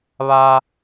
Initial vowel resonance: oral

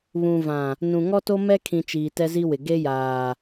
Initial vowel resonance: nasal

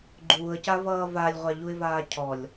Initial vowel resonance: oral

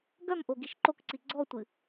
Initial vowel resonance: oral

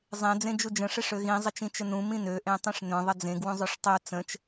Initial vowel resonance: nasal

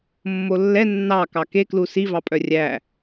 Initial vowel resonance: oral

